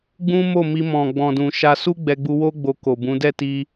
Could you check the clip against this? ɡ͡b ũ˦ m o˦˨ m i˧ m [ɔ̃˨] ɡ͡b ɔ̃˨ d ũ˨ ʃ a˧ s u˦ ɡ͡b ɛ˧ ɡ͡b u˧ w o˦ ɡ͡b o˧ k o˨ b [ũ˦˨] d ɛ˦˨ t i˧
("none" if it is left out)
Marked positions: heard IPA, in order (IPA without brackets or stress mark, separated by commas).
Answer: ɔ̃˨, ũ˨˦